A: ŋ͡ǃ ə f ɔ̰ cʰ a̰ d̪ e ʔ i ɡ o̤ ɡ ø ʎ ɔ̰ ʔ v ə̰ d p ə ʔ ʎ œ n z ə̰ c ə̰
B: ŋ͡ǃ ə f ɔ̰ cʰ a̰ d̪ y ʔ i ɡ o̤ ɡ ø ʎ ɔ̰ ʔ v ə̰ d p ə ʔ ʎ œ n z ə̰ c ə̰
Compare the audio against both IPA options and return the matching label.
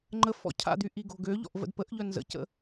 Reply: B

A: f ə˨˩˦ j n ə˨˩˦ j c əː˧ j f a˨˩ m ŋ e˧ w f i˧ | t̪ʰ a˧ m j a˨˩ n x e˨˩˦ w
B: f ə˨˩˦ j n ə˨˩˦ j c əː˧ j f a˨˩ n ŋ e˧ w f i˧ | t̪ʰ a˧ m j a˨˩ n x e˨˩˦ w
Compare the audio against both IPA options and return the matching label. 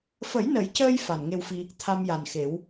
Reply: B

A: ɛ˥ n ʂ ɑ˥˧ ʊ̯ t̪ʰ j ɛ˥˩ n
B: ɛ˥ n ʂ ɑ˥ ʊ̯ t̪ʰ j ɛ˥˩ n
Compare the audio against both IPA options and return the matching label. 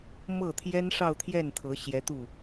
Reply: A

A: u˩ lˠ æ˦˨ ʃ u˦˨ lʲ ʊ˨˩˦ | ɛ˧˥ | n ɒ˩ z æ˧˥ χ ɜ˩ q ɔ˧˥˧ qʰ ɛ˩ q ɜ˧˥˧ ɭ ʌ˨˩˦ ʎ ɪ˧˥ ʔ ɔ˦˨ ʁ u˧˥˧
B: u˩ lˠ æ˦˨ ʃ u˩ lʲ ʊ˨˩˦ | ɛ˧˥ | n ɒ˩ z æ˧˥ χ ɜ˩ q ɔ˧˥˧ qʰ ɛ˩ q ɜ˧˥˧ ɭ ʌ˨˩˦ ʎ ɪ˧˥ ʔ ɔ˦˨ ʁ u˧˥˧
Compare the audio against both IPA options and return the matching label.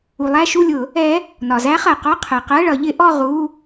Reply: A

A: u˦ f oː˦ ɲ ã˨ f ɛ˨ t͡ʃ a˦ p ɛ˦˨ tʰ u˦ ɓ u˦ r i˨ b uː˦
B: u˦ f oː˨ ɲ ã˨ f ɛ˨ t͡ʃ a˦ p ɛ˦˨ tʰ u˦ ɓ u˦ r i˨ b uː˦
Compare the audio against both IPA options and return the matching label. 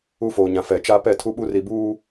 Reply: B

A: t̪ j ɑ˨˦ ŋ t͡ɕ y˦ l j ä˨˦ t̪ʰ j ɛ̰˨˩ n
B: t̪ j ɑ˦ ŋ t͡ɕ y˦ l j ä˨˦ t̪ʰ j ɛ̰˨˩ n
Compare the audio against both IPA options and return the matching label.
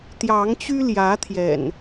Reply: A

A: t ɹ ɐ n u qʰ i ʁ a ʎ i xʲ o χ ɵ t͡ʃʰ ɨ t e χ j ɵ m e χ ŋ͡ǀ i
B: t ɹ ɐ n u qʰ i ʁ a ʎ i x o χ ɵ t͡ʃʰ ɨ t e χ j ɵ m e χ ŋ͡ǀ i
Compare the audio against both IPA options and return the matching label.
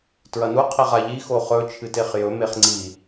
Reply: B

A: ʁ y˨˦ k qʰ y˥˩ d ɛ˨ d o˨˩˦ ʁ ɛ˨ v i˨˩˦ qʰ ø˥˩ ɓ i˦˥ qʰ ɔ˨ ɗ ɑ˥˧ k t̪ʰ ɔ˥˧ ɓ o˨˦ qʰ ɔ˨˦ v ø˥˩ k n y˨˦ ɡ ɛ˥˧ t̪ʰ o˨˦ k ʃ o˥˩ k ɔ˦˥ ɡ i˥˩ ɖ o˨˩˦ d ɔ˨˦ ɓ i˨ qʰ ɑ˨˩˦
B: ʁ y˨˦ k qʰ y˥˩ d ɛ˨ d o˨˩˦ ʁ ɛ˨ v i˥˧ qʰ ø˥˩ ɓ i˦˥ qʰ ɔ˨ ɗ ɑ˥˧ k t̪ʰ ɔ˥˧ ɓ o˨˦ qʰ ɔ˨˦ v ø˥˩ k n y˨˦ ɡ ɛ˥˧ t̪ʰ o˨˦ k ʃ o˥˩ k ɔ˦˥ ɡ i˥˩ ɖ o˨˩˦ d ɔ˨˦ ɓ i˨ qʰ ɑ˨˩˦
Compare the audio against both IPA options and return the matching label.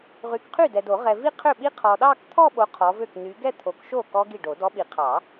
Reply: B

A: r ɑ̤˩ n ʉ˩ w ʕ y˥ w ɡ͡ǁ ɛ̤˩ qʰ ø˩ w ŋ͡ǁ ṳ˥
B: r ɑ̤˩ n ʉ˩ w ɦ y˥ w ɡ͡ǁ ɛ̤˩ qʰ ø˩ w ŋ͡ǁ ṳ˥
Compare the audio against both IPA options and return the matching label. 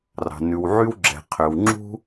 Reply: A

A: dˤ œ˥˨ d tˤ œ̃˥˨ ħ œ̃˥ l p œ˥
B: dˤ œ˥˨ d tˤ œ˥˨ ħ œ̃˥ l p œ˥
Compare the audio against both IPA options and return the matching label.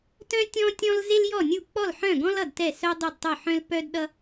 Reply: B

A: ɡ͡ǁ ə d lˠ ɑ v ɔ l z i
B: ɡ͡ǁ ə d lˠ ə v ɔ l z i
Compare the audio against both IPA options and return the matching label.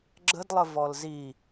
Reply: B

